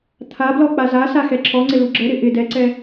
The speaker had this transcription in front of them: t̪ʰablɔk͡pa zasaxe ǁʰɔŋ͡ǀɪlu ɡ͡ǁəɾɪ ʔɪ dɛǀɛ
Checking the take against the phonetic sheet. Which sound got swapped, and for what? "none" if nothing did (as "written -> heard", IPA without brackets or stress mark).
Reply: e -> ɛ